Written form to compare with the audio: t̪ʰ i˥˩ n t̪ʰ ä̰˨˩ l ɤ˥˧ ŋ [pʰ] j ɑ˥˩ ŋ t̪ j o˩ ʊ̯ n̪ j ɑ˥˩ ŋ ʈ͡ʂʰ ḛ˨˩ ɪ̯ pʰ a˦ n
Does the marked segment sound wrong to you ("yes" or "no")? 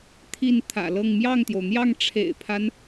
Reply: yes